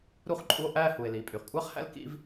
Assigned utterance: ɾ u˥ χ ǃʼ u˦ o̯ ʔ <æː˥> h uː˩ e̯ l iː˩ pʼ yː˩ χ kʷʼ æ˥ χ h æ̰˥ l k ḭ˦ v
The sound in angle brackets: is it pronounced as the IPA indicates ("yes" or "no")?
yes